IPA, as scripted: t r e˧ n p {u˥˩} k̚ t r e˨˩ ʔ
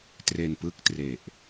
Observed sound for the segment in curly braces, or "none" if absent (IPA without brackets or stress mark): ɯ˥˩